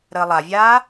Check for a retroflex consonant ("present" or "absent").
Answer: absent